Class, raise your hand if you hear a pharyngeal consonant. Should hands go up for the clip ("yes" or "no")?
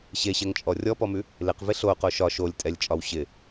no